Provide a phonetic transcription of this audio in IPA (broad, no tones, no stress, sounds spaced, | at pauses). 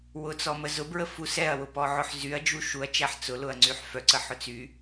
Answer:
w ʊ t͡s ɔ m ə z ʊ b ɹ ə f u s ɛ ɐ̯ w ʊ p ɔ ʕ ʊ ħ z y ɐ̯ d͡ʒ u ʃ u ɐ̯ t͡ʃ æ ħ t͡s ʊ l ʊ ɐ̯ ŋ͡ǀ y ħ f œ ǀ ə ħ ʊ t͡s y